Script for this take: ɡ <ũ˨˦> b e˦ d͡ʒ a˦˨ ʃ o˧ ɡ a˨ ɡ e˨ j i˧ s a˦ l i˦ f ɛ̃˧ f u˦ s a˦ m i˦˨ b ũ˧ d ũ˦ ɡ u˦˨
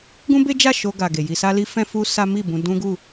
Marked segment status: incorrect: ũ˦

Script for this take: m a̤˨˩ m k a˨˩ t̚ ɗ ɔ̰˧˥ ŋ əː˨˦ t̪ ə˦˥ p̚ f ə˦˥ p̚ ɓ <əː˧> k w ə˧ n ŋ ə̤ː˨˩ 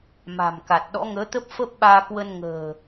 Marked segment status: incorrect: aː˧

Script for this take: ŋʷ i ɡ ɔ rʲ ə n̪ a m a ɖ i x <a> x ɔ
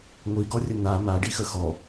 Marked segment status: incorrect: ə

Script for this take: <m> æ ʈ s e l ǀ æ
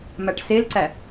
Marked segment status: correct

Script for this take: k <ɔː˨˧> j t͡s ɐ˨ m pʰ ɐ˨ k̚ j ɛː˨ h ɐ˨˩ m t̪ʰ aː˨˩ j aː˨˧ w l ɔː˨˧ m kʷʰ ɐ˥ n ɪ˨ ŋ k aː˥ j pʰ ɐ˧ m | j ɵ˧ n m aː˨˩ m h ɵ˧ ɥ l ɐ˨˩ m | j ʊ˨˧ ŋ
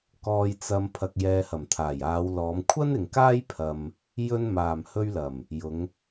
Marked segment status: incorrect: ɔː˨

